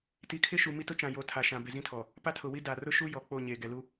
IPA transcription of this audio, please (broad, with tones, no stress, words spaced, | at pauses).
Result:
ti˨˦kʰɪ˦ʃu˨ mi˦tʊ˦t͡ʃã˨ jo˨˦tʰa˨ʃã˨ be˨zĩ˦tʰɔ˨ | pa˦tʰʊ˨wi˦ da˨rʊ˦ʃu˦ jɔ˨ k͡po˦˨ɲe˨ ɡɛ˨lu˦